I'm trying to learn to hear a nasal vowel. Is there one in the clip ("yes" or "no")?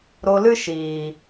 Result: no